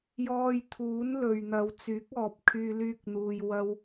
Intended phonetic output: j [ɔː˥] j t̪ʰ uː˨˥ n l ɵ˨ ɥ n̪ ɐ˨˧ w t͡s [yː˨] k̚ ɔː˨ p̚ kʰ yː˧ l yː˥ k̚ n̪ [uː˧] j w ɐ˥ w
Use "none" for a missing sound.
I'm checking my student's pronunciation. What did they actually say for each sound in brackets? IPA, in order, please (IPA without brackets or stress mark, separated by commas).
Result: ɔː˧, yː˨˥, uː˧